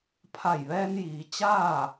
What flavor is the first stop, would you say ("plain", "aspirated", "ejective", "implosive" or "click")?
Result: aspirated